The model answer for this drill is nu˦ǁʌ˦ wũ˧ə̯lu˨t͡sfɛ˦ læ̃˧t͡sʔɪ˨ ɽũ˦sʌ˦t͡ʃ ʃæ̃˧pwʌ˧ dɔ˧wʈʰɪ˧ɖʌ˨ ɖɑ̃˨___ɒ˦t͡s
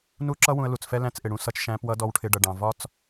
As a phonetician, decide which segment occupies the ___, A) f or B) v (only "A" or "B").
B